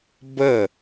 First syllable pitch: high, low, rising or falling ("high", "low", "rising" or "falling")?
falling